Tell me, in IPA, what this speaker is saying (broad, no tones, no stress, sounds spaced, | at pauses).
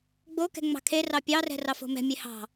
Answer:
ɡ͡b o k ɛ̤ ŋ͡m ɑ̤ kʰ e r ɑ pʲ ɑ r ɛ̤ r ɑ f o̤ m ɛ̤ mʲ e h ɑ̤